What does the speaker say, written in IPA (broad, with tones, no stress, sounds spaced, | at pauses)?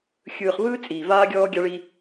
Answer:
xʲ ɯː˨ χ v ɯː˦ t͡sʼ iː˨ v aː˦ ɡʲ ɔː˦ ɡʲ a˦ ɭ i˦